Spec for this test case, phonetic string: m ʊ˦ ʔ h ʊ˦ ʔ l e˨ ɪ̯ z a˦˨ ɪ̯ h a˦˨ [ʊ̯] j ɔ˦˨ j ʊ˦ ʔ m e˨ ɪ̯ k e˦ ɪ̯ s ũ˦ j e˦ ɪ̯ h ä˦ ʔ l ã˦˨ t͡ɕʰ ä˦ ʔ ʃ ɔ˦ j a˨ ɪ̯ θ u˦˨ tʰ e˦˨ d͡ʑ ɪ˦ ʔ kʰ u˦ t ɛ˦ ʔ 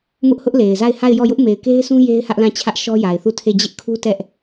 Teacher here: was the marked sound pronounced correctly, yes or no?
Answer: no